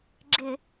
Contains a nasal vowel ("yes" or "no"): no